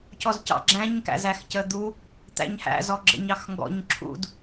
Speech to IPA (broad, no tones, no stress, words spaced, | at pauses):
cɔzcɑ̰ɡ͡ǁæ̃ɲ kæ̰zæxcəd̪u | t̪æ̰ɲhæ̰ zɔɡ͡ǁə̰ɲ ɑxŋɡɔ̰ɲ ǁʰṵd